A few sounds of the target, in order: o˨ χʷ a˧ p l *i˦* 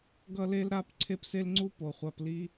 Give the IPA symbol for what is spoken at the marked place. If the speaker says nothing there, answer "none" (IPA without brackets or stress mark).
i˦